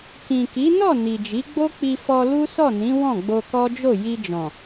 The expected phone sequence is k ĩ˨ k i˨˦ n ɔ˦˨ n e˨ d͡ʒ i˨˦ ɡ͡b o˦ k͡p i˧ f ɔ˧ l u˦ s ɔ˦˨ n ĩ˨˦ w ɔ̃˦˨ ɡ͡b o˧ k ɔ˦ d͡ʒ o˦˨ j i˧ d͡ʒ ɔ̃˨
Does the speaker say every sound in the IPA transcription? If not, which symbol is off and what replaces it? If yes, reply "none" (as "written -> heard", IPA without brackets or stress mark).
e˨ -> i˨